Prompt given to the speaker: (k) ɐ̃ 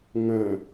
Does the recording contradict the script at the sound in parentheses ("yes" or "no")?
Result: yes